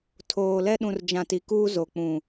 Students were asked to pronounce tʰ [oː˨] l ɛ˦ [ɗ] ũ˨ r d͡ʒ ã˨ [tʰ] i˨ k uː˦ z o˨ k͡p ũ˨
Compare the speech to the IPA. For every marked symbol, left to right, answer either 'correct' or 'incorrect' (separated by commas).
correct, correct, incorrect